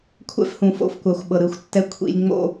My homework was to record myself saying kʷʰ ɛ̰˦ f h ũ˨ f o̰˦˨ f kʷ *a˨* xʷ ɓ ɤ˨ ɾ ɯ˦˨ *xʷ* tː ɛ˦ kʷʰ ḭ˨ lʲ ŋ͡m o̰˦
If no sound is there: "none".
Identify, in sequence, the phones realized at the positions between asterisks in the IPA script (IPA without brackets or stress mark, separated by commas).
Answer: a˨, xʷ